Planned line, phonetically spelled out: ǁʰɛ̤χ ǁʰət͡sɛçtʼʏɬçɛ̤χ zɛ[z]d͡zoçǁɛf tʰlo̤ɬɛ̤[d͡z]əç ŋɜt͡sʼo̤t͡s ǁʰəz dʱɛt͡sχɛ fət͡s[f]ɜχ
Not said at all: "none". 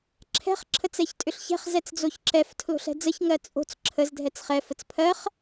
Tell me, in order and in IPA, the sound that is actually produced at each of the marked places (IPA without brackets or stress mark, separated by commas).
t͡s, d͡z, pʰ